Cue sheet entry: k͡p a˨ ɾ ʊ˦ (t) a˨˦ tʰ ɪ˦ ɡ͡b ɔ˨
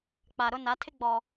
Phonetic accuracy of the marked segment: incorrect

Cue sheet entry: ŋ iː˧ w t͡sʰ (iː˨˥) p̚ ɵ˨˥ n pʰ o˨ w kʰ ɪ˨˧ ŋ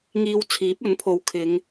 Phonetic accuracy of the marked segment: correct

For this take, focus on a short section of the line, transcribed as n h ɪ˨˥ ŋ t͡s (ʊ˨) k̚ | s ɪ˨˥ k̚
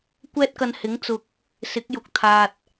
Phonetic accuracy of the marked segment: correct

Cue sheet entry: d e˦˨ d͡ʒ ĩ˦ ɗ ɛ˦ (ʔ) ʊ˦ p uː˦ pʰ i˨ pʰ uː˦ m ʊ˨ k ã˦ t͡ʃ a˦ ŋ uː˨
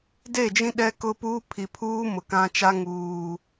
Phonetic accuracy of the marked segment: incorrect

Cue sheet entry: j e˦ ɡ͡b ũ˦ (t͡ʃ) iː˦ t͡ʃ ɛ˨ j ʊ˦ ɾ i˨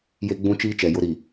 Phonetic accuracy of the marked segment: correct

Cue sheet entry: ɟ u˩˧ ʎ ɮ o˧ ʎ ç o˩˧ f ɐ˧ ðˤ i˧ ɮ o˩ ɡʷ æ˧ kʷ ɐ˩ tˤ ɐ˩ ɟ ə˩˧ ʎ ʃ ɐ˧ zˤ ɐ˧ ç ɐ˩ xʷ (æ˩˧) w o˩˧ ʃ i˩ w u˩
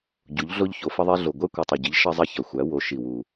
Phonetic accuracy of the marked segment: correct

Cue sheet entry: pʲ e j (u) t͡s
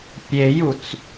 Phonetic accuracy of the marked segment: correct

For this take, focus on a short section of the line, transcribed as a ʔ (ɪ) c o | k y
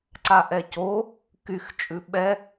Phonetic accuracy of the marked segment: incorrect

